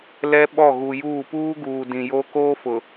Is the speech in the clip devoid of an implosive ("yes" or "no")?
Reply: no